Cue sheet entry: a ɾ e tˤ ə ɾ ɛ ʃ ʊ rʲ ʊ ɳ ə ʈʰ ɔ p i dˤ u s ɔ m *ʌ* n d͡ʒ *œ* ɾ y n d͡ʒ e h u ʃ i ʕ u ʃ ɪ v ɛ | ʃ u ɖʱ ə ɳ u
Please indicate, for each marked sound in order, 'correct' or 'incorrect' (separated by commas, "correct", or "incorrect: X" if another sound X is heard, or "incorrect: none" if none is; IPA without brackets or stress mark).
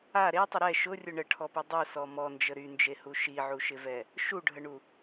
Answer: incorrect: ɔ, incorrect: ə